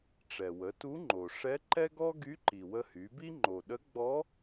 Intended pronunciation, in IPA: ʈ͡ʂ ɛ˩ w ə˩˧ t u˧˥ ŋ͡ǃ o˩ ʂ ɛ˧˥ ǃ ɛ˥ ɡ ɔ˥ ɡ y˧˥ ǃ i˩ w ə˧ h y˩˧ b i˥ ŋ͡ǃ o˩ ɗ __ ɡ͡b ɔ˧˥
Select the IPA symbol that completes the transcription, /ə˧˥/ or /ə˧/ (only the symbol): ə˧˥